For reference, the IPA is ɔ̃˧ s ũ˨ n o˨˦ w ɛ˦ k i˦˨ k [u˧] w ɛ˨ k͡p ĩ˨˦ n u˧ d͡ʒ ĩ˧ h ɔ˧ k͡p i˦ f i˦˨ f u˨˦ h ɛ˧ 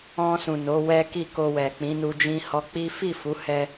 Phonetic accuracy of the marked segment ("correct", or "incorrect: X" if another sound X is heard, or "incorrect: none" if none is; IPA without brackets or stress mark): incorrect: o˧